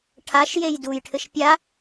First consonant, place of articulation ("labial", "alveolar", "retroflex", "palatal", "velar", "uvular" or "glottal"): retroflex